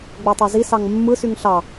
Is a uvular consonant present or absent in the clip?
absent